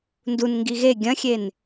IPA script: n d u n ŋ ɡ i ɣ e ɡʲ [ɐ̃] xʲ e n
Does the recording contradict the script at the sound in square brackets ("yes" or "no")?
no